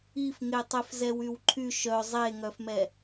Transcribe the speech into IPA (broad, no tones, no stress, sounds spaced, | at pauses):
i f ŋ e tˤ e f z ɛ w y w ǃʰ y ʃ œ zˤ e ŋ œ f m ɛ